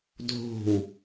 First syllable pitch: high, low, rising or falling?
falling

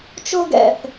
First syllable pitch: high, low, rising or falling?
high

